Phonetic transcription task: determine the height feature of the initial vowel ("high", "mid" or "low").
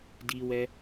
high